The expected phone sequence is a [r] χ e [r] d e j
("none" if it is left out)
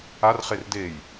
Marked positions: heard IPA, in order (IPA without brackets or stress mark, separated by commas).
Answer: r, r